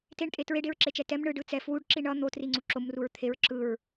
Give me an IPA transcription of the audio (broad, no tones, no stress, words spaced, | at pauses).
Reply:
teɳtʼe tɹeɖeɹǁet͡ʃɛ tɛm ɳɯɖɯ t͡sɛ fwuɖǁi ɳʌ n̪otriŋ͡ǀu ǁomruɹ t̪ʰeɹ ǁɯɹ